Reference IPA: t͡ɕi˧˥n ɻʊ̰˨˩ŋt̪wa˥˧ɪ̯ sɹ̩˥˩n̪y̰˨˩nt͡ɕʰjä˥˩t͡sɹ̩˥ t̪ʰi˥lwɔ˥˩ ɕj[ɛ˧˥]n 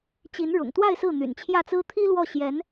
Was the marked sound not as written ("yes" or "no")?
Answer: no